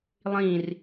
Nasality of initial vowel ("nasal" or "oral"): nasal